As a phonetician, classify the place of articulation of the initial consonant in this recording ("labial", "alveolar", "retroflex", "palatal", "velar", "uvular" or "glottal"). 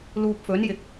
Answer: alveolar